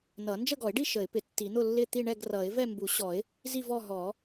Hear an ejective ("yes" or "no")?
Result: no